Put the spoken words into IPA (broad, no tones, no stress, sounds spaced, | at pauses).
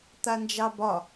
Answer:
t̪ a n d͡ʒ ɑ b ɒ